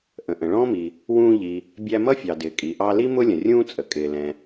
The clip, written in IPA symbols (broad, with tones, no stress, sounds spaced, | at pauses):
ʔ ə̃˩ ʔ ə̃˩ ɭ ɔ̃ː˥ m i˩ | w ũː˧ ʎ i˩ | bʲ æ˧ m ʌ˥ fʲ ɑ˩ d ɪː˩ kʼ i˩ ʔ ɑ˧ l i˥ m ʊ˥ lʲ ə̃˩ rʲ ũː˥ t͡sʼ ə˩ kʼ ɪː˩ l ɛ̃˩